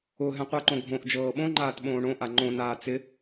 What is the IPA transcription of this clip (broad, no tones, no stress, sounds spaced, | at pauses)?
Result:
ʊ ɦ ɛ̃ qʷ ɤ ǃ õ ɡʱ õ ʔ d͡ʒ ɤː ɓ õ ŋ͡ǃ aː t ɓ õː ɳ õ ʔ a ŋ͡ǃ õ n aː t͡s ɪ